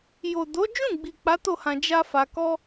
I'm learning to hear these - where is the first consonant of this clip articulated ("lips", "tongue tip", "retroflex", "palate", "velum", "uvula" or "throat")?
palate